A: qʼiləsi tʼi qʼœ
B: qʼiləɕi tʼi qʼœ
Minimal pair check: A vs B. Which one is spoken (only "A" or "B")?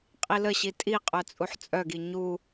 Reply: B